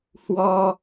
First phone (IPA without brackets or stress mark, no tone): h